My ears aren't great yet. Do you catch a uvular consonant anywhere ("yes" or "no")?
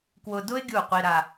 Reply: yes